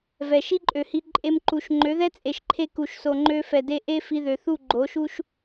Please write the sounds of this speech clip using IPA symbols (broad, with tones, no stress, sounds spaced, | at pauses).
v ɛ˨ ʃ i˦ ǃʼ ø˨ h i˧ ǃʼ e˦ m ǃ u˧ ʃ ŋ͡ǃ ø˨˦ ð ɛ˦ t͡sʼ e˨ ʃ ǃʰ e˧ k u˨ ʃ s o˨ ŋ͡ǃ ø˧ f ɛ˨ d e˧ ʔ e˦ f i˧ ð ø˨ θ u˦˨ ɡ͡ǃ o˨˦ ʃ u˦ ʃ